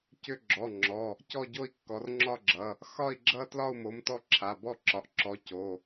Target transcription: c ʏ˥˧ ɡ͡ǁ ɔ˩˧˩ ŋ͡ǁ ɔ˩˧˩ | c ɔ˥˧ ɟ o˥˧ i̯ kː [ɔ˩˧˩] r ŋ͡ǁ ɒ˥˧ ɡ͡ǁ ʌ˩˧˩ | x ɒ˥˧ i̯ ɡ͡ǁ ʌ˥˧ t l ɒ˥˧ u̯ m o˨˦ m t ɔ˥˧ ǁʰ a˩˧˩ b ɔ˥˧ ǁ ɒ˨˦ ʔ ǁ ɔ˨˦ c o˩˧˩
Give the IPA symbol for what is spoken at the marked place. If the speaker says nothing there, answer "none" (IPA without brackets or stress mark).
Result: ɔ˨˦